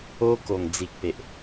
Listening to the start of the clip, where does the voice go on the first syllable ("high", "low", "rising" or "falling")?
high